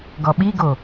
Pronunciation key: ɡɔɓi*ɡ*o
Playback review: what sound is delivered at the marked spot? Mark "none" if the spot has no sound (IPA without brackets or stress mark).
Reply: ɡ